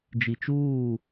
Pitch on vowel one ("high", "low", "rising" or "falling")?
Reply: low